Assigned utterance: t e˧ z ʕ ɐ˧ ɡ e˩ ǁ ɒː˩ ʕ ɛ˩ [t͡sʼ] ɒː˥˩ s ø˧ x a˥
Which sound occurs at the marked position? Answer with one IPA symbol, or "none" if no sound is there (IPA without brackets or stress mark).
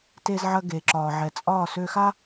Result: t͡sʼ